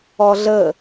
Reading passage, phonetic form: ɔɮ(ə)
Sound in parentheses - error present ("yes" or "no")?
no